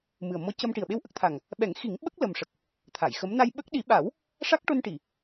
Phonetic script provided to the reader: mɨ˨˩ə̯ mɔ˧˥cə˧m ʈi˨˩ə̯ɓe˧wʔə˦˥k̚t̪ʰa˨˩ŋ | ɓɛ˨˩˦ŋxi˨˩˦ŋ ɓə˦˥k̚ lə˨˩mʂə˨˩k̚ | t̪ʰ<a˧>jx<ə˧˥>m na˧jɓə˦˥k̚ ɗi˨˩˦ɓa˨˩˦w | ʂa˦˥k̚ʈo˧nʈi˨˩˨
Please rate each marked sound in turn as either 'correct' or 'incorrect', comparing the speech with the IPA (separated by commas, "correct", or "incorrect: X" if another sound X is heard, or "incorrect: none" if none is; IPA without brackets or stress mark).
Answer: incorrect: a˨˩˨, correct